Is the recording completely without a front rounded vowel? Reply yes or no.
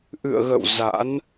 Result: yes